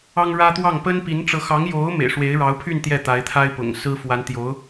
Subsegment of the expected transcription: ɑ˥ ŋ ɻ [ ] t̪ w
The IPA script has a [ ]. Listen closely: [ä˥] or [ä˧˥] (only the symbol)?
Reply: ä˥